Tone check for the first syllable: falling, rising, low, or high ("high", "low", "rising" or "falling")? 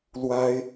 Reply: high